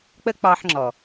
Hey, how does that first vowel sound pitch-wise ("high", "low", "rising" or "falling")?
high